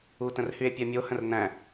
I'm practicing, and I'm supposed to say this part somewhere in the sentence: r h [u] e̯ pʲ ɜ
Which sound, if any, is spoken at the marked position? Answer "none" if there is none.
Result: y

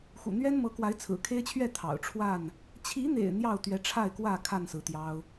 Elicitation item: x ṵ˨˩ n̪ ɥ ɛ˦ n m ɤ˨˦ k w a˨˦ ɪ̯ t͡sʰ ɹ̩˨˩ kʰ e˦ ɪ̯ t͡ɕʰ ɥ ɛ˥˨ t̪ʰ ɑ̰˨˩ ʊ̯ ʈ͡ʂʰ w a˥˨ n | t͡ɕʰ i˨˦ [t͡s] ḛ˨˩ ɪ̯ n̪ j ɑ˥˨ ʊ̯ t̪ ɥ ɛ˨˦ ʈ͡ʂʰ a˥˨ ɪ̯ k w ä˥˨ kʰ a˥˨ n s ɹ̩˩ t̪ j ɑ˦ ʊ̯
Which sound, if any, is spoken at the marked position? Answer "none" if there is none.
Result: n̪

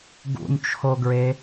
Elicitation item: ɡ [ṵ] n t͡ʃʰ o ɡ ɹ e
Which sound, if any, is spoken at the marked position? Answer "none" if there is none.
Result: ṵ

